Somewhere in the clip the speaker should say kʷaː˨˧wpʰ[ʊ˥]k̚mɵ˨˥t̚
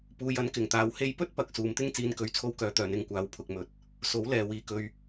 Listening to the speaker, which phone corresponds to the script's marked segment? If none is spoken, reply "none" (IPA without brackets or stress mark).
ʊ˨